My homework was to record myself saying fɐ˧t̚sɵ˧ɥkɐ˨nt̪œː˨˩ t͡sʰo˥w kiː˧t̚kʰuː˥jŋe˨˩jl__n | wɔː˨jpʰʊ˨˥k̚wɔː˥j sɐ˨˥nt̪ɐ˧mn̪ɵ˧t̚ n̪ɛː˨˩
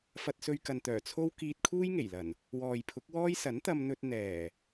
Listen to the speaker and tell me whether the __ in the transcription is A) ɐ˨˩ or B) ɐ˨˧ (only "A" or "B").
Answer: A